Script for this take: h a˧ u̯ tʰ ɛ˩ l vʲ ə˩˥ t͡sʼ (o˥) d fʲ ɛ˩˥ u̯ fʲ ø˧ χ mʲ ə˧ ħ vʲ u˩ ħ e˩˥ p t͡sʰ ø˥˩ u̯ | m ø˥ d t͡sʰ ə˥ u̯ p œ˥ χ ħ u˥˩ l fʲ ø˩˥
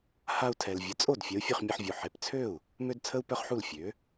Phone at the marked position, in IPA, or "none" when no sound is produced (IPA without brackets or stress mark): o˥˩